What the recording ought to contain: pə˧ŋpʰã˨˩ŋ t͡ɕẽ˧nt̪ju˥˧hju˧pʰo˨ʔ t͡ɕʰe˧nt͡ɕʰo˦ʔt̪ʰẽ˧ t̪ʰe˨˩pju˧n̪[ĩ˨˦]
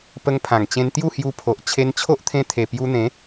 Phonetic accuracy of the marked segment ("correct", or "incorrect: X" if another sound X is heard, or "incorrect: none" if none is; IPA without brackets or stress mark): incorrect: ẽ˨˦